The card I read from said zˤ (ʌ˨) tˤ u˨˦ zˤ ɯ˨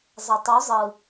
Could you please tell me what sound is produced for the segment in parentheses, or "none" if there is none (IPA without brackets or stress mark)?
ʌ˨